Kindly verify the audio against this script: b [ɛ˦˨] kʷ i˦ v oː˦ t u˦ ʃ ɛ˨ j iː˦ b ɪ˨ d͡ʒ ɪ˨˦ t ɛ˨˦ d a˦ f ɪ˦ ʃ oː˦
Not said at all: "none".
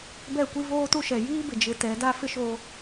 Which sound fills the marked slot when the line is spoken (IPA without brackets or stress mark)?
ɛ˦˨